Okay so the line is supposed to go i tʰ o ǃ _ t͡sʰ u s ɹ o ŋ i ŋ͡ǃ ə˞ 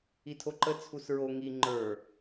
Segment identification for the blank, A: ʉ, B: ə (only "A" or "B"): B